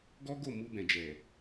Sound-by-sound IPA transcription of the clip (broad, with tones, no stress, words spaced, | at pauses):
ɡɔ˦ ɡo˦˨mu˧bɛ̃˨ d͡ʒɛ˨